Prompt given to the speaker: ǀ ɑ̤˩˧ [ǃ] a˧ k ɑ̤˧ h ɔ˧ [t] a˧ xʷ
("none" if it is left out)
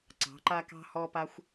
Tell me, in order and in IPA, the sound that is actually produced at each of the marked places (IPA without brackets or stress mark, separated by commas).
ǃ, p